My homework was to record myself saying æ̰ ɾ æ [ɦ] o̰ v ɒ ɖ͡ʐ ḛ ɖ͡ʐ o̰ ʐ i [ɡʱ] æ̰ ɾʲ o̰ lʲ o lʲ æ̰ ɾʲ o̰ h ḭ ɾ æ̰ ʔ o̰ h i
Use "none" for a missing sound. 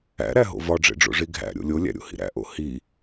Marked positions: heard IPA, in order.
ɦ, ɡʱ

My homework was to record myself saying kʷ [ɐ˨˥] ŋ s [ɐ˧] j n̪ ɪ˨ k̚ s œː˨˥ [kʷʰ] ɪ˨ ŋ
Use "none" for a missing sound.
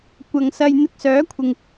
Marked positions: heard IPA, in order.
ɐ˨, ɐ˧, kʷʰ

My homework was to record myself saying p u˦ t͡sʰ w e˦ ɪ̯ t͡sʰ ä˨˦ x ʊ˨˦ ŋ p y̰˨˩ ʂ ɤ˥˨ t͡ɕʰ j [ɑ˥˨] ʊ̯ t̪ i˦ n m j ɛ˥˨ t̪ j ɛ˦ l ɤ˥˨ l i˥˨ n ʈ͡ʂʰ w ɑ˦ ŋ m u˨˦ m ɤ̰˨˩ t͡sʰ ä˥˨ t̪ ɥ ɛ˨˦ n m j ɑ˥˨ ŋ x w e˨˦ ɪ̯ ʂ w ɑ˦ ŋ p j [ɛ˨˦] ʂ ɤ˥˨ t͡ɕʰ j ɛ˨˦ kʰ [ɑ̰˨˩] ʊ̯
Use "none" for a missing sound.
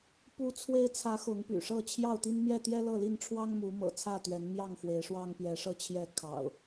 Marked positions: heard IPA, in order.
ɑ˥˨, ɛ˨˦, ɑ̰˨˩

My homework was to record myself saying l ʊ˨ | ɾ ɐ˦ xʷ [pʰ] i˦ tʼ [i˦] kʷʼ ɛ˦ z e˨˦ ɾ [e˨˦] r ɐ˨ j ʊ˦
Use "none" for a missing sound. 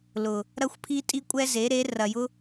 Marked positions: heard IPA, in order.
pʰ, i˦, e˨˦

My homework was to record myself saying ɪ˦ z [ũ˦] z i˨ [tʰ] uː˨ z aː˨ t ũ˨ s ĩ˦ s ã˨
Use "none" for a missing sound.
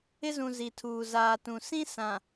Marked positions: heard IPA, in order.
ũ˨, tʰ

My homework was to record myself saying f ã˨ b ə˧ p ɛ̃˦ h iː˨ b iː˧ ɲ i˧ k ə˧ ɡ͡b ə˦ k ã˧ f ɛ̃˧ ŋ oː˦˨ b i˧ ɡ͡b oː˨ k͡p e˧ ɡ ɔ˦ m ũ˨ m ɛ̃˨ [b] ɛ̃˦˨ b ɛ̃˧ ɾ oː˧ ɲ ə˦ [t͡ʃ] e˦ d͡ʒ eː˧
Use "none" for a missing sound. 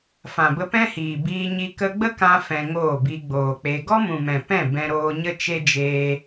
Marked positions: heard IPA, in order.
p, t͡ʃ

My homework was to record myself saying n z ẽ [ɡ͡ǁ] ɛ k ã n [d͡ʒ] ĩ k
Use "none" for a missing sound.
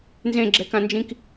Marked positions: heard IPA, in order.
ɡ͡ǁ, d͡ʒ

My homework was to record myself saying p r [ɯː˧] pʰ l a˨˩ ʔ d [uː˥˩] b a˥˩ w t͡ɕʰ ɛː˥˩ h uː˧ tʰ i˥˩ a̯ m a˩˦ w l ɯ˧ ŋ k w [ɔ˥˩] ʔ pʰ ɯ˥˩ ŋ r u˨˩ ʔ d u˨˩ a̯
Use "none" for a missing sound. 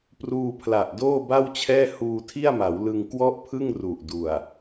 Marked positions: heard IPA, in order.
uː˧, oː˥˩, ɔ˥˩

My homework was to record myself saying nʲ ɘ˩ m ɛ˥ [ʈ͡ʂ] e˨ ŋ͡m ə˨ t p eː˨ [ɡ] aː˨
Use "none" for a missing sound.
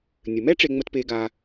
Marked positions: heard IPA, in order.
ʈ͡ʂ, ɡ

